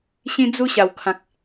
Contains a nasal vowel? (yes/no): yes